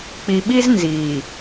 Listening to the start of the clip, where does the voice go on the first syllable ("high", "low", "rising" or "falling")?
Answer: low